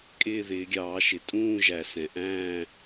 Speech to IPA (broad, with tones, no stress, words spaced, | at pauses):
kʼɪː˦˨ðɪː˩˧ɡʲɑː˩˧ʃɪ˩ tʼũː˦˨ʒæ˩ sɛ̃˩ ʔæ̃ː˦˨